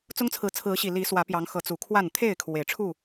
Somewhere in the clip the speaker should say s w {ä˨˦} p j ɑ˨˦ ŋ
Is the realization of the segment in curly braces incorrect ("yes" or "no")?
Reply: no